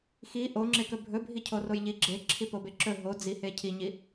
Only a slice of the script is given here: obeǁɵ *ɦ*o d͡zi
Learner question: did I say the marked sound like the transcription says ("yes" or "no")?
yes